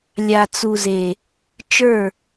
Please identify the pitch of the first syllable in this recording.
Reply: low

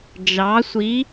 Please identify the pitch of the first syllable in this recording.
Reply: rising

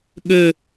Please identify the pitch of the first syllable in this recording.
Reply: falling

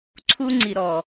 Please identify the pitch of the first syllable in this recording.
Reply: high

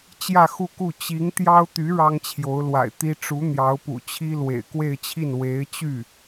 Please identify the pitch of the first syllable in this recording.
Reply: falling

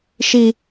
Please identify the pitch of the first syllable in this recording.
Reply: low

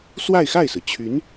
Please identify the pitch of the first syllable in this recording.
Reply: falling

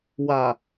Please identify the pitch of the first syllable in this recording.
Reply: low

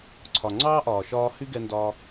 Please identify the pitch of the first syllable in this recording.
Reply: low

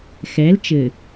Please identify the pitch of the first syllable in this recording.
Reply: rising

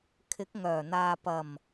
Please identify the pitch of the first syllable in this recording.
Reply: rising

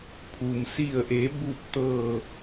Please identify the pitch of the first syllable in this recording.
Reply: low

